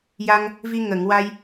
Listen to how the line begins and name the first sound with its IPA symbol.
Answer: j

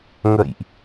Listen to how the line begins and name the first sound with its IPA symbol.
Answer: ŋ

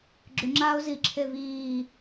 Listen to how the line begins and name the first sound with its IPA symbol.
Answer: ɡ͡ǁ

